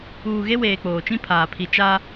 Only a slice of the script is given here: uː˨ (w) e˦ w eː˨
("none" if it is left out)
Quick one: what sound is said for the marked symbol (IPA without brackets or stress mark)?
ɣ